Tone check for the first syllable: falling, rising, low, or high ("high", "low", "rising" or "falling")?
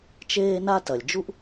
high